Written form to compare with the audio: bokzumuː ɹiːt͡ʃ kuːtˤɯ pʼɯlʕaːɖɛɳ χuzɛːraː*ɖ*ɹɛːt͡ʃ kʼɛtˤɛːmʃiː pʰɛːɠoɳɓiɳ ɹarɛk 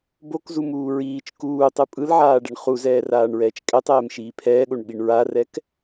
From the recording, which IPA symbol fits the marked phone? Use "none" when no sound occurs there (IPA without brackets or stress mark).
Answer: ɳ